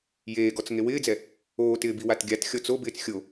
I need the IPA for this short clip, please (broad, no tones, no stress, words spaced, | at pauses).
jeːɡɔt͡s ŋewɪːd͡zɛ | oːtɪː biwatɡʲatxʲɔ t͡sobɪːt͡s xʲo